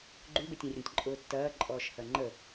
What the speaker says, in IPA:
ɡ͡ǃ ʉ b e tʲ ẽ rʲ ə̃ tʲ ǃʼ ʊː tː ɐː ǃʼ ɔː ʃ h ɐ ŋ͡ǃ ə

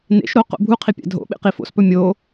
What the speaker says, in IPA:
n ḛ ʃ ɾ o q o̰ bʱ u qʰ i pʲ a̰ dʱ o̰ ɓ ḛ q i f o̰ s p ɵ mʲ o

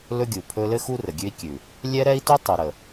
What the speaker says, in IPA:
l ɵ˦ ɡʲ u˨ pʰ ɵ˦ l ɘ˦ x u˦ r ə˨ ɡʲ ʉ˦ i̯ kʲ ʉ˨ | lʲ ɛ˦ ɾ ɛ˦ i̯ t u˦ tˤ u˨ ɾ ə˨

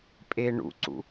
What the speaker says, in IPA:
pʼ e ɳ ṵ ǀ ṵ

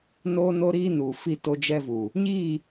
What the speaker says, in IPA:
n oː˦ n o˦ ɾ iː˦ n uː˨ f i˦˨ t o˦ d͡ʒ ɛ˦ v uː˨ | ɲ iː˦˨

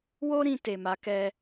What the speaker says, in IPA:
w o˦ ɾ ĩ˧ t e˨ m a˨˦ k ɛ˧

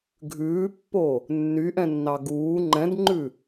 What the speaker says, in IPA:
ɡʱ ʉː pː o | nː y ʔ ɛ̃ nː ɑ ɡ uː ŋ͡ǃ ɛ̃ d ŋ͡ǃ ʉ

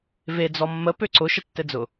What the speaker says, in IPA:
v e d͡z ɔ mː ə p ø ǀ ʊ ʃ ə tː ɘ d͡z ʊ

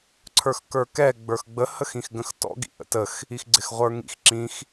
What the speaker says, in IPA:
ǀʰ ə˞ x k ə˞ k ɛ ɡ͡b ə˞ x ɡ͡b ə h ə x ĩ x ɡ ə̃ x t ɔ̰ ɡ ḭ ʔ ə̰ t ə x | i x ɡ͡ǀ ɪ x ʁʷ ə˞ ŋ ḭ x ǁ ĩ x

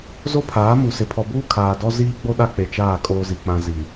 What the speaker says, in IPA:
z o˦ pʰ aː˨˦ m u˨ s ɪ˨ pʰ ɔ˨ b uː˦ kʰ aː˨ d ɔ˦ z iː˦ ɡ͡b o˦ ɗ a˦ k͡p e˨ t͡ʃ aː˦˨ kʼ oː˦ z i˨ k͡p ã˦ z i˨

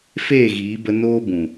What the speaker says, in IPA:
f eː˦˨ ɣ iː˨˦ b ə˧ n oː˦ b ũ˨

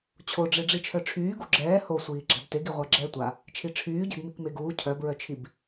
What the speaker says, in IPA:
t͡ɕʰ o ɖ͡ʐ e ɖ͡ʐ i t͡ʃʰ œ ʈ͡ʂʰ yː ɡ u ɡ͡ǁ ɛː h o sʷ iː ɡ͡ǁ a̤ d t e ɡ i ʁʷ a ɡ͡ǁ ɛː tʷ a | t͡ʃʰ i ʈ͡ʂʰ yː ɟ e̤ d m i k m e ɡ uː cʰ œ b ɹ œ t͡ʃʰ i b

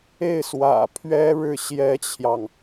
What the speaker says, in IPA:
e˥˩ ɪ̯ s w ä̰˨˩ pʰ ɥ ɛ˥ ɻ ɻ̩˥˩ ɕ j ɛ˥ t͡ɕʰ j ɑ˨ ŋ

